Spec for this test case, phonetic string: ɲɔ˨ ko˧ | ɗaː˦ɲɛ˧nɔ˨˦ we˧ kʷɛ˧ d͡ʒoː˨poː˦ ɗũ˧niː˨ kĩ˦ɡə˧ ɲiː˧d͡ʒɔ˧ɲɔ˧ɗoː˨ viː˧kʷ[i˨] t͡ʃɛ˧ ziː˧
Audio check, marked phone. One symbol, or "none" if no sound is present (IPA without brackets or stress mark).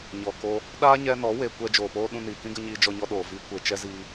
e˨